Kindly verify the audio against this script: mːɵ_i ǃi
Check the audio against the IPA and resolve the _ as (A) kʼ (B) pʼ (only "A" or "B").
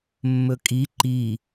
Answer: A